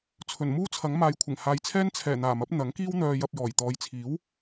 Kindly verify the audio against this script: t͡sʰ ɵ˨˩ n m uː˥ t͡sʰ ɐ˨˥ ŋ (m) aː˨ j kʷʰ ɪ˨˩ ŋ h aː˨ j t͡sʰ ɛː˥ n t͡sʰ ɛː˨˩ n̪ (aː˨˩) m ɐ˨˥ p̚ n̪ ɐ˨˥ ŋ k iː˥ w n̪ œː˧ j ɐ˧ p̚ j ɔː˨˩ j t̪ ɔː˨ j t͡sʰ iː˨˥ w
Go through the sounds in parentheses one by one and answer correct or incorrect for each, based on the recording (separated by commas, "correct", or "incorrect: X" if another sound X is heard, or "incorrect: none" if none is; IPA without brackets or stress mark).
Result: correct, correct